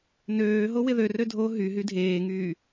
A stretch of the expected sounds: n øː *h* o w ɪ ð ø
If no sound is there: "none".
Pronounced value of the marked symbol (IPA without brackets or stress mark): ɦ